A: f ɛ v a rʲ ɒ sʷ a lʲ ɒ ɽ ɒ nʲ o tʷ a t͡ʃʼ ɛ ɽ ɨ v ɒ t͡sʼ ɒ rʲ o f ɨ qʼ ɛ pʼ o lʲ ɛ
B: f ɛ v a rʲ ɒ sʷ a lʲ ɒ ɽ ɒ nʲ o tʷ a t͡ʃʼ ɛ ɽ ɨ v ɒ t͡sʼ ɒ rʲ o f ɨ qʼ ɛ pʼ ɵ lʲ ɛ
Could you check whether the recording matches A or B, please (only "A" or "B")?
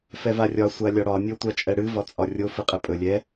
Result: B